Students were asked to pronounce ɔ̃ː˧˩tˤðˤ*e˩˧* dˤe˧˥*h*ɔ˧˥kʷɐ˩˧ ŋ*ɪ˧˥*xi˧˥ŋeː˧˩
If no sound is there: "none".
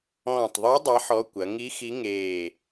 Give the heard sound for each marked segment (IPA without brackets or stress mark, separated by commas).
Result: e˧˥, ħ, i˧˥